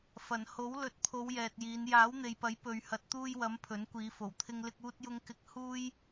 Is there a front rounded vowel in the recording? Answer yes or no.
no